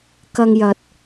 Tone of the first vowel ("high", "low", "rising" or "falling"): high